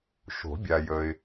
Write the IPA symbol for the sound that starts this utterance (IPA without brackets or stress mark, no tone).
ʃ